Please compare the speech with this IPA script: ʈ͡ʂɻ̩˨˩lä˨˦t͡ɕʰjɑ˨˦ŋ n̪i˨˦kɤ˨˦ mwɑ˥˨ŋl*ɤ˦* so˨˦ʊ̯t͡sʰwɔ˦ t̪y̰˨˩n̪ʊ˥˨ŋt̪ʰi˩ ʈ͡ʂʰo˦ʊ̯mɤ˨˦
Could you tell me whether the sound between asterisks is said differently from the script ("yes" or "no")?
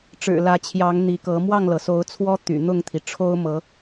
yes